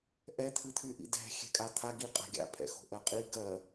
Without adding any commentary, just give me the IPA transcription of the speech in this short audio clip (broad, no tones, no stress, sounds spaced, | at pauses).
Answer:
ʔ ɛ t̪ʰ ɨ t̪ʰ y ʔ ḭ d ɛ̤ xʲ ɛ̤ kʼ a t̪ʰ a ɡ i qʼ a̤ ɡʲ a̰ pʰ ɛ̰ x o̤ ʔ ɜ qʼ i ɡ ɜ